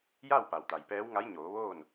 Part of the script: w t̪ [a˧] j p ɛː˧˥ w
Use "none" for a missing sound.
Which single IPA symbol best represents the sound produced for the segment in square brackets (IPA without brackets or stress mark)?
a˩